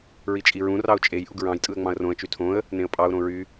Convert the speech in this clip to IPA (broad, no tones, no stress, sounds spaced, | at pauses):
ɹ i t͡ʃʼ i ɹ ũ r ɑ ʊ̯ t͡ʃʼ e j ʔ u ɡ ɹ ɑ̃ j tʼ ɯ ə̯ ŋ͡m ɑ̃ ə̯ r õ ə̯ t͡ʃ y tʰ õ ə̯ | n ẽ ə̯ pʼ ɑ ʊ̯ ɾ õ ɹ y